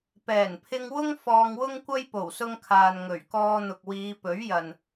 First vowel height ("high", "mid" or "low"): mid